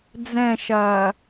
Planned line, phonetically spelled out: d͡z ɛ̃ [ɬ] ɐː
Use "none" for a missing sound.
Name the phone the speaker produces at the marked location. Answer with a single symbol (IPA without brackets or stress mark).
ʃ